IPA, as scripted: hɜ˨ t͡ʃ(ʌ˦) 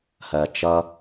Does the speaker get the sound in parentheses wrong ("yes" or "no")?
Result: no